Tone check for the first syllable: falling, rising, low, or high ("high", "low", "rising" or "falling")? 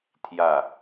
falling